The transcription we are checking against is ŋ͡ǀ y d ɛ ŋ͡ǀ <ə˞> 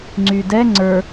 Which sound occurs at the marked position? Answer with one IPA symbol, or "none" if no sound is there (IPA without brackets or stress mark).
ə˞